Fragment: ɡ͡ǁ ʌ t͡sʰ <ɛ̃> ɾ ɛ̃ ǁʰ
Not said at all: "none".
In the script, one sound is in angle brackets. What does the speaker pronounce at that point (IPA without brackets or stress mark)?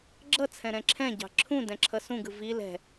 ɛ̃